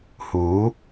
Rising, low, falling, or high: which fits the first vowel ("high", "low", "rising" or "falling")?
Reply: rising